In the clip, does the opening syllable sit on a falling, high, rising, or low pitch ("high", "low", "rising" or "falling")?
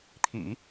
low